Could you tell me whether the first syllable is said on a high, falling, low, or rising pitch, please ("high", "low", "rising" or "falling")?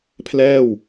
falling